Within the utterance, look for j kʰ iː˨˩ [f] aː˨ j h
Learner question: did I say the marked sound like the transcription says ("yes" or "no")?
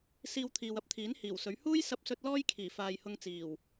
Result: yes